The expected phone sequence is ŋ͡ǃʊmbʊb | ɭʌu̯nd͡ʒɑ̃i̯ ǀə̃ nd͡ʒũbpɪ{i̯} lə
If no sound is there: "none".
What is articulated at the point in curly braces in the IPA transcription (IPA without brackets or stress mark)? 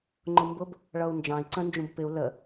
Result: u̯